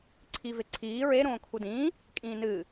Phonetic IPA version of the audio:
ǀʰ i v e ǀʰ iː ɹ e ɾ õː kʰ u d ĩː | kʼ ĩː n ɨː

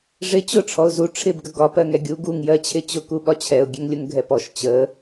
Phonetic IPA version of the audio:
ʐ ɪ t͡ɕ ʊ ʈ͡ʂʰ ɔ ʊ̯ z u ʈ͡ʂʰ ɪ b ɡ ə ɡ ɒ p ɜ ŋ ɛ ɡʲ u ɡ u ŋ j ɜ t͡ɕʰ ɪ t͡ɕ ʊ k u ɓ ɒ t͡ɕʰ ɛ ʊ̯ ɡʲ ɛ ŋ lʲ ʊ ŋ ɡʱ ɛ p ɔ ʃ t͡ɕ ə

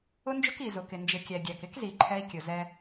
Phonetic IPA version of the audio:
ʊ˦ n d͡ʒ ʊ˦ k i˨ z ʊ˨ k ɪ˨ n d͡ʒ ɪ˨ kʲ æ˨ ɡʲ æ˨ k ɪ˦ k z i˨ ǃʰ ɛ˦ i̯ kʲ ʊ˨ z ɛ˦

